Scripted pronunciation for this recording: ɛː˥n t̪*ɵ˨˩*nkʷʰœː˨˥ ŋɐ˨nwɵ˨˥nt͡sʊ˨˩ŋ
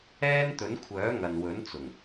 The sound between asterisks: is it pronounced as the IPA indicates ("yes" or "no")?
no